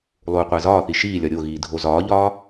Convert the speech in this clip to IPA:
lˠ uː qʷ æ z ɒː θ i ʃ iː lʲ ɒ ɾʲ o ɣ iː dʱ o z ɒː ʎ ɒː

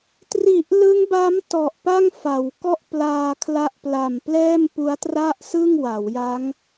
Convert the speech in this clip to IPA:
t r i˨˩ ʔ l ɯ˦˥ ŋ b a˦˥ m t ɔ˨˩ ʔ p a˥˩ ŋ f a˩˦ w k ɔ˥˩ ʔ p l aː˧ kʰ l a˦˥ ʔ p l a˨˩ m p l ɛː˥˩ m p u˦˥ a̯ t r a˥˩ ʔ s ɯ˥˩ ŋ w a˩˦ w j a˦˥ ŋ

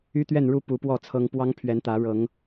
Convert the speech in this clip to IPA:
y˦ t̪ ɥ ɛ˥˨ n ɻ u˥˨ p u˨˦ p w ɔ˥˨ t͡sʰ ɤ˦ ŋ p w ɑ˦ ŋ pʰ ɥ ɛ˨˦ n t̪ ä˨˦ ɻ ɤ˨˦ ŋ

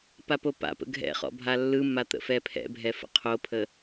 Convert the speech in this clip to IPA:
p a p o p a̰ p ə̰ ɡʱ ɛ̰ χ ɔ̰ bʱ a lː ɯ mː a t̪ ə̰ f ɛ pʰ ɛ̰ bʱ ɛ f ə̰ qʰ o pʰ ə

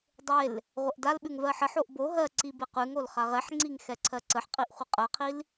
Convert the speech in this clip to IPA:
dˤ e l | ʁʷ ɛ ʔ d a l ɓ ʉ ŋ v ɜ ħ ə ħ o ʔ b o ɦ ɜ ǀ i b e q ʉ ŋ o l χ a ʁ ɛ ħ ŋ͡ǀ i ŋ x ɛ ǀʰ ɜ ǀ ə ħ qʼ i ʔ χʷ ə qʼ ɜ qʰ i l

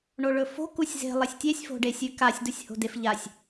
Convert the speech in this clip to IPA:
ɳ o ɭ ɵ f o̤ k u sʲ z e̤ lˠ ɐ sʲ tʲ e sʲ f o̤ ɖ e sʲ ʉ k a sʲ d u sʲ h o̤ d e f ʎ a sʲ

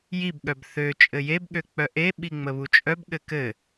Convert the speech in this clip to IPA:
j i b ɠ œ b θ ø t͡ʃʼ ɘ j e b ɠ ø k͡p œ ʔ e ɓ i ŋ͡m ə β u t͡ʃʼ œ b ɠ ɘ k ɘ

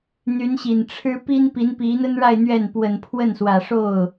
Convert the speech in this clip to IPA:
n̪ y˧˥ n ɕ i˨˩ n ʈ͡ʂʰ ɻ̩˥ p i˥ n p i˧˥ n p i˧˥ n̪ ə˥ n ɻ a˥˧ ɪ̯ n̪ ɥ ɛ˥˩ n p w ə˨˩ n pʰ w ə˥˩ n s w ä˨˩ ʂ o˥˩ ʊ̯

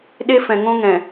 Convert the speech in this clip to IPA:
ɗ e˦ f ɛ̃˨ ŋ õ˦ ŋ ɛ̃˨

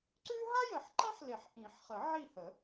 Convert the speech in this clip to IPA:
ǀ ʉ˥ ɦ a˥ j ə˨˩˦ ħ ǃ ã˥ ħ l e˨˩˦ ħ ʔ ĩ˨˩˦ ħ χ ə˨˩˦ ʕ i˦˨ h ə˨˩˦

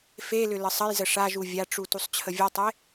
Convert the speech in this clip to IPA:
f e l ʏ l ə sˤ ə j z ə ʂ a ʒ u vʲ a ʈ͡ʂ u t u sˤ t͡ɕʰ ə vʲ ɔ tˤ e

